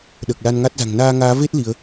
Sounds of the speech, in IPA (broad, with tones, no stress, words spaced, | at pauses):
ɗəː˨˩k̚la˧nŋa˦˥t̚za̤˨˩ŋ naː˧ŋaː˨˦ve˦˥t̚ li˨˦ə̯